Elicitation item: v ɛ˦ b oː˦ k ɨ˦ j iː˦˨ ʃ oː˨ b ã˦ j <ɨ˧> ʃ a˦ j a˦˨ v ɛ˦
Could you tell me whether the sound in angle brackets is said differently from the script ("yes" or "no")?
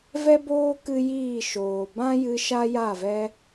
no